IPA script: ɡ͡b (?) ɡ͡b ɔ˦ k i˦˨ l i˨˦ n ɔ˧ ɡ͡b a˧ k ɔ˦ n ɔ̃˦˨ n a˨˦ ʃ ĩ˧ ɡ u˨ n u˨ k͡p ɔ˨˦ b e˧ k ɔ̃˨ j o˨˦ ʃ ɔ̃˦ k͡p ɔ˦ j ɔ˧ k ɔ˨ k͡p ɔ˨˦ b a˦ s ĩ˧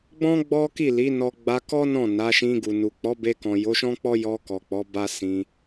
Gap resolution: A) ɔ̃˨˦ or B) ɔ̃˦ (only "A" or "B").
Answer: B